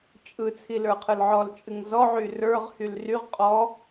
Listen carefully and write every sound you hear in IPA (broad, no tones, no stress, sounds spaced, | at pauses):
t͡ʃʼ ɯ t͡sʰ i l ə˞ qʰ ɯ l ʕ ɔ l t͡ʃʼ ɨ ŋ z ɔ ʕ y r ə˞ ʁ h y l r y ʁ qʼ ɔ